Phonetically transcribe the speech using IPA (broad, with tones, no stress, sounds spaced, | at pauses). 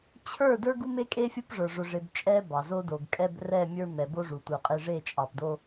t͡ɕʰ ə˞˦˨ d ə˞˦ ɡ u˦ m e˦ kʼ e˦ fʲ ʊ˦ p ʐ ə˞˨ ʐ ʊ˨ ʐ e˨ b t͡ʃʼ ɛ˦ b ɑ˨ z o˦ d o˨ ɡ kʼ ɛ˦ b r ɛ˦˨ mʲ ə˞˦ m ɛ˨ b o˦ ʐ u˨ tʷ ə˞˨ qʼ e˦ ʐ e˦˨ t͡ʃʼ ɑ˨ p d o˦